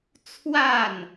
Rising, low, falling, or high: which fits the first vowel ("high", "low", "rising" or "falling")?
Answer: falling